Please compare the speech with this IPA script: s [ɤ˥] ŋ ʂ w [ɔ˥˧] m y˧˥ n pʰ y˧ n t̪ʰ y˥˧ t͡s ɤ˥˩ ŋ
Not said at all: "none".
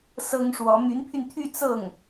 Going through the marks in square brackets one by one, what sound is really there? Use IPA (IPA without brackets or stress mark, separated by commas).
ɤ˥, ɔ˧˥